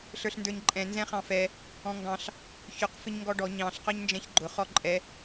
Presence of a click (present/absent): present